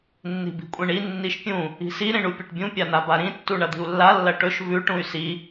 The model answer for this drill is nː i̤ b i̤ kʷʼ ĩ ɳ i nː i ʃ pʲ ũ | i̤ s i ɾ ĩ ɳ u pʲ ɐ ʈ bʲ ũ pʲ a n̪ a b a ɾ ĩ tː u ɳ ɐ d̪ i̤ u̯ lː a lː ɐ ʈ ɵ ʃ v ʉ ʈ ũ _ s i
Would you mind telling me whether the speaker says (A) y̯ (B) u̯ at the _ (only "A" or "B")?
A